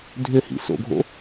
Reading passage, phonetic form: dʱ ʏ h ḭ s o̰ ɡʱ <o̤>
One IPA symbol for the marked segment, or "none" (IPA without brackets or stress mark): o̰